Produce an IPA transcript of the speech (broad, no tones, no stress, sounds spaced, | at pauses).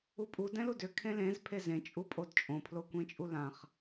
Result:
u pʼ u d ɛ̃ l u d ʏ kʰ ẽ l ẽ z pʰ e z ẽ t͡ʃʼ u pʼ o d t͡ʃʼ õ pʰ l o kʷ ẽ t͡ʃʼ u l ã χ